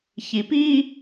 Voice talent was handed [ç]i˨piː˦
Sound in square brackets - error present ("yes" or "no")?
no